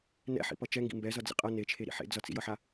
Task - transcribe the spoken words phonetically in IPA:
n ɛ̰ ħ ḭ p ʌ t͡ʃ ɛ ŋ ɡ ḭ m b ɛ z ʌ d͡z ḭ qʼ ʌ n e t͡ʃʰ e ɾ ḭ ħ ḛ d͡z ʌ t͡s ḭ j ʌ ħ a

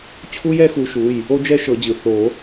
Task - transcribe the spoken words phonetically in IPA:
t͡ɕʰ u˥ j ɛ˥ x u˨˥ ʃ u˩˧˩ j | o˥ d͡ʒ ɛ˥ ʃ ɤ˨˩˦ d͡ʑ ɯ˩ θ o˨˩˦

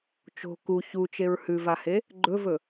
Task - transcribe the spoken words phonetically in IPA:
t͡ʃ o̤ k u ç u t͡ʃ e ɹ h ʉ v a h e | ɡ͡ǃ ɵ v ɵ

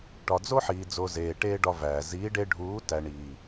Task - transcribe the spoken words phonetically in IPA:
ʈ ɒ˨ d͡z o˦ ħ iː˨ d͡z o˨ z eː˨ ʈ eː˦ ɖ ɒ˧ v æː˨ z iː˨˦ ɖ e˧ ɖʱ uː˨˦ t æ˨ ɳ iː˨

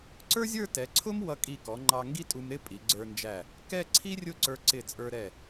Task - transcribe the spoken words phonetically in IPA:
ǀ ə˞˥ zʲ ə˞˥˧ t ɛ˩˧ ǀʰ ʊ˥ m w ʌ˧ kʼ i˧˩ k ɔ˩˧ ŋ͡ǃ ɑ˧ ŋ ɡ i˥ tʼ u˧ m ɾ ɪ˥˧ pʼ i˩˧ ɡ͡ǀ ə˞˧ n d͡ʒ æ˧˩ | k ɛ˥˧ ǀʰ i˥ rʲ ʊ˥˧ ǀ ə˞˧ ǀ ɪ˧˩ t͡sʼ ə˞˧ ɾ ɛ˧˩

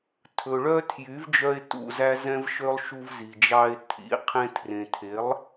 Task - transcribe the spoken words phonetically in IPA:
tʰ ɵ˨ ɭ œ˦ tʰ j y˨˦ v d͡ʒ œ˧ e̯ t ṵ˧ z æ˦ z ɛ̃˦ v ʃ ø˦ lˠ ʃ u˧ v z i˨ d͡ʒ ɑ˧ e̯ tʰ ḭ˨˦ qʰ ẽ˧ tʰ r ẽ˨ tʰ e˨˦ lˠ

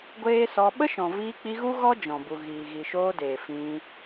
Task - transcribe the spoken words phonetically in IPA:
ɡʷ eː˦ s ɔ˧ ɓ ə˦ ʃ ɔ̃˨ v iː˧ k͡p i˧ ɣ u˦ ɣ ɔ˦ d͡ʒ ɔ̃˨ b u˨ ɣ iː˨ ɣ i˨ ʃ oː˧ d eː˨ f ĩ˧

